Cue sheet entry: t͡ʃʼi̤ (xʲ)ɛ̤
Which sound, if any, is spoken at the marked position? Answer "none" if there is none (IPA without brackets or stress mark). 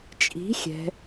xʲ